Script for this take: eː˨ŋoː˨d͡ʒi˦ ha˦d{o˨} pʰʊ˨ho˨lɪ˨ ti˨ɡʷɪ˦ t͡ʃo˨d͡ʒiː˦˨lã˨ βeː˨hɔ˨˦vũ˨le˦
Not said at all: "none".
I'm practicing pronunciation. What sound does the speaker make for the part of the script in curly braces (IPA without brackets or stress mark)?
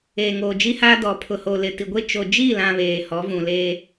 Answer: ɔ˨